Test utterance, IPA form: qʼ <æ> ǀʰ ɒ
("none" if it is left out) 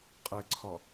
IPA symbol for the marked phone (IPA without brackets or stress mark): ɛ